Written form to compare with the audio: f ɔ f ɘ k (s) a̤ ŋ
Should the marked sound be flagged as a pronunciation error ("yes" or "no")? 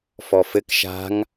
yes